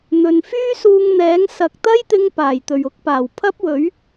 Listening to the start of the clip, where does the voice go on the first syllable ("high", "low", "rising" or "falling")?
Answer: low